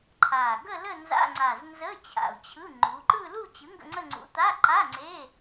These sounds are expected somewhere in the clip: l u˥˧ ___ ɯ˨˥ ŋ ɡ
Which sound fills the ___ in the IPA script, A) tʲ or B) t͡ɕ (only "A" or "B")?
B